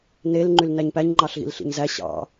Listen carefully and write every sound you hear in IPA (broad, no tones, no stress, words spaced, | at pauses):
nel ŋ͡ǃylnæɲpæɲ ŋ͡ǃɑɬɣḭlɬḭɲzæ ɕɑ̰